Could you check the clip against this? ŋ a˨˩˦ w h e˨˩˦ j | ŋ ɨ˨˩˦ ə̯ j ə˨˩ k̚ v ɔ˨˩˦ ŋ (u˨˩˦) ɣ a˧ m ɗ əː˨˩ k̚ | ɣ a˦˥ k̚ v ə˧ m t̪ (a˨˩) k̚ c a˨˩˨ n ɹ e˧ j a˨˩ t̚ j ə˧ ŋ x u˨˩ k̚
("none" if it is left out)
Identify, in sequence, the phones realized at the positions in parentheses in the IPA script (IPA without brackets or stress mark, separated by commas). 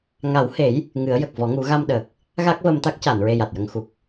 u˨˩˦, a˦˥